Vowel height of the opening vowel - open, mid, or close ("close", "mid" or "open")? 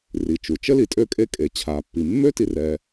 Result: close